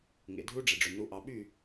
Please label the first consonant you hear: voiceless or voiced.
voiced